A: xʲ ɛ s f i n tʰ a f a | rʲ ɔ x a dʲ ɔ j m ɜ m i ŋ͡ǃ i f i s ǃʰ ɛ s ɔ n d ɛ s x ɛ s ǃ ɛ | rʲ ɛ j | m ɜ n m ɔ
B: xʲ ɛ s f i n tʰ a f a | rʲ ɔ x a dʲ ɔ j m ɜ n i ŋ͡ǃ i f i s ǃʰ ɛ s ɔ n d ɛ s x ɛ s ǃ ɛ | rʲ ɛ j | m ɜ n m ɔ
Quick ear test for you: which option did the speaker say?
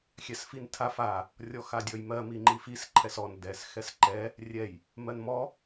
A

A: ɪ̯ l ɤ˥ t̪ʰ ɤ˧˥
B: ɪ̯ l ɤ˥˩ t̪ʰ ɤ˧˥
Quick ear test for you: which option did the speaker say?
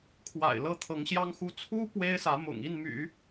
B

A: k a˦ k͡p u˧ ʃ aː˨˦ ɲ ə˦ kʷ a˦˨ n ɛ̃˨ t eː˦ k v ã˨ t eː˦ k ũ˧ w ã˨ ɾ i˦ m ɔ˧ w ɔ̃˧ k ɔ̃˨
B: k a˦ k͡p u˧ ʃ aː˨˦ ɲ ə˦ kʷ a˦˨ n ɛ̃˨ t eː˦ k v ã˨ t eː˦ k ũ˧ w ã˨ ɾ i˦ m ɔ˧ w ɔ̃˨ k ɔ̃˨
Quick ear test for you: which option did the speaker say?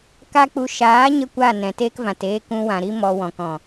B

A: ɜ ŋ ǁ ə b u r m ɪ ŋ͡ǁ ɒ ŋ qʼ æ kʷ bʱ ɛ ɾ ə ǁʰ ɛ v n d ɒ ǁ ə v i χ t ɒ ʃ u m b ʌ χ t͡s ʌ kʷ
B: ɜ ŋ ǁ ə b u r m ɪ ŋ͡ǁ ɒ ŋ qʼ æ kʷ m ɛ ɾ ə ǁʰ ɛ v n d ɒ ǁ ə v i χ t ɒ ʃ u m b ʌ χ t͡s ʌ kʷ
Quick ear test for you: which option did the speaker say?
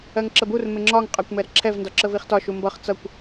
B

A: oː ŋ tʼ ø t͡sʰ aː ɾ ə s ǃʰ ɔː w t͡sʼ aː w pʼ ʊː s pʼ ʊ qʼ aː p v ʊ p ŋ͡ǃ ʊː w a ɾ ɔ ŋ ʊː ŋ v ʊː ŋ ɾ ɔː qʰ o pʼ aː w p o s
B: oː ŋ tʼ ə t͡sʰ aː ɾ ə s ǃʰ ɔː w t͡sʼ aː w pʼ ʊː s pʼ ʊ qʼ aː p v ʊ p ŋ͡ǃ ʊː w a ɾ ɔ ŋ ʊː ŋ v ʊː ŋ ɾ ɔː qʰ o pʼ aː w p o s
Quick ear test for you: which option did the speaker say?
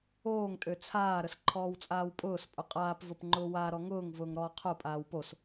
A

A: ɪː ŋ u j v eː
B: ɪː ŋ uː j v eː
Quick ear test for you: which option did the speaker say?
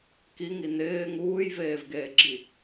B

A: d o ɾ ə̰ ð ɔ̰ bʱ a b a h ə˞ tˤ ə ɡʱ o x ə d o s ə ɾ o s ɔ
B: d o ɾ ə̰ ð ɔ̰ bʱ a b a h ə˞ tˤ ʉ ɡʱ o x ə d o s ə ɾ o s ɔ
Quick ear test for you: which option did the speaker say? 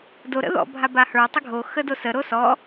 A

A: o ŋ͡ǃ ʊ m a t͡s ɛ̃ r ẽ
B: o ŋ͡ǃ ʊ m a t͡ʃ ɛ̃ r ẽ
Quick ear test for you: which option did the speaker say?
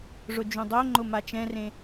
B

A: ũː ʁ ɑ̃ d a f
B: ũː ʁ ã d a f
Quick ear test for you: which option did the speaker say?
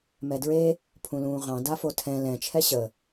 A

